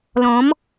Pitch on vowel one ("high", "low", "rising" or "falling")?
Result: rising